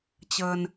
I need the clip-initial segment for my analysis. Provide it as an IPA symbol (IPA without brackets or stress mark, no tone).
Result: t͡ɕ